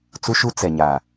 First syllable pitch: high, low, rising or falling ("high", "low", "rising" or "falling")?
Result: high